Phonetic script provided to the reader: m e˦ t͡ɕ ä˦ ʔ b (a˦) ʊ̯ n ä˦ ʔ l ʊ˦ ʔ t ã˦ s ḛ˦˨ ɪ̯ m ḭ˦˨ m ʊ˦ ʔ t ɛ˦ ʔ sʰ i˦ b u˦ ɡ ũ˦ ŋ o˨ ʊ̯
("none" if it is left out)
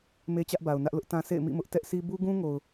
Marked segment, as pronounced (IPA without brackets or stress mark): a˨